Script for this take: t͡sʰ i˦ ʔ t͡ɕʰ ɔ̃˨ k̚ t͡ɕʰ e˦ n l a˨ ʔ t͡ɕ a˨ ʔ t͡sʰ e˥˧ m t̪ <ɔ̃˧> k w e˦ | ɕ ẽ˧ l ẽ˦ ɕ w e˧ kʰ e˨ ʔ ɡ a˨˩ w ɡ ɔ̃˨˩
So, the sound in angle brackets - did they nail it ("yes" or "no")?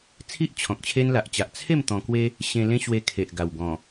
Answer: yes